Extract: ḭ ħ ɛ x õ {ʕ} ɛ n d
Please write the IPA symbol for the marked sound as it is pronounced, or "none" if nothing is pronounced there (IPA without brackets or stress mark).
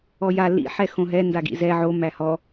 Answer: ɦ